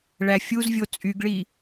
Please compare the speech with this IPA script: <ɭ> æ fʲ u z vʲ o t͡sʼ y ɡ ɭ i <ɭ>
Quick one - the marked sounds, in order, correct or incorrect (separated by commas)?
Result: correct, incorrect